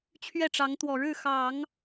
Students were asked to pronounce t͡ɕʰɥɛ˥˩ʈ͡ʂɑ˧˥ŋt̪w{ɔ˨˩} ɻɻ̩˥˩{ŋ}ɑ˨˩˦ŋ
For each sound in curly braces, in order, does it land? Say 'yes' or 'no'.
yes, no

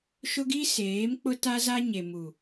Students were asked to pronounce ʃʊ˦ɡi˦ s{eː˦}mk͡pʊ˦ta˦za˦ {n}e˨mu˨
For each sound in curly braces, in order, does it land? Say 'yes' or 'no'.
no, no

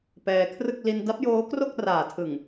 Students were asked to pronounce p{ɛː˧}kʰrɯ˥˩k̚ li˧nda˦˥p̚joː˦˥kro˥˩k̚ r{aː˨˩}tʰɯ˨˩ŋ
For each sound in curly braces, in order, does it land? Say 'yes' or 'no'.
yes, yes

